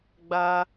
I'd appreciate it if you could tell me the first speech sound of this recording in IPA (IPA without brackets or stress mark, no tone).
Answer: ɡ͡b